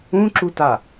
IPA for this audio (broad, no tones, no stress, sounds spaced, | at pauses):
ũ ǁ u t a